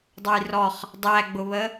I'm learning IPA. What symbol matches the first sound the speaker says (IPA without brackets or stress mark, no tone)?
dˤ